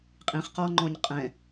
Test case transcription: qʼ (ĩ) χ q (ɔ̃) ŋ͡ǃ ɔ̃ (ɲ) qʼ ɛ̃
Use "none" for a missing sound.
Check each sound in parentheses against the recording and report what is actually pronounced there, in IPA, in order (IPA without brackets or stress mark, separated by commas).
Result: ĩ, ɔ, ɲ